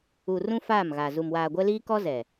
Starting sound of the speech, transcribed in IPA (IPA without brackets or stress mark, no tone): u